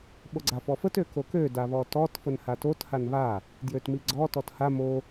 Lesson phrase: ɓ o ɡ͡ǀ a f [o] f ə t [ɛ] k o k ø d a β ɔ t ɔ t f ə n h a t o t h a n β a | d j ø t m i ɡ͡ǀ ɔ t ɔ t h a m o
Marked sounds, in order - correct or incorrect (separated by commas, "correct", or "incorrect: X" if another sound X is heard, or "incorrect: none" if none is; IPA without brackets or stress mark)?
incorrect: ɔ, incorrect: ø